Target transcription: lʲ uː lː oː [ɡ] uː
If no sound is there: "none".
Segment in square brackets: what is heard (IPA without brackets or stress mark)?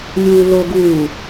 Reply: ɡ